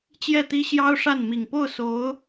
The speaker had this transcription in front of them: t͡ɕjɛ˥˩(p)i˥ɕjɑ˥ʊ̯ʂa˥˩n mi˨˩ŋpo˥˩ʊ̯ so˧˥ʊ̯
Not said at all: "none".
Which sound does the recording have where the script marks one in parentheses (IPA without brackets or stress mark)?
t̪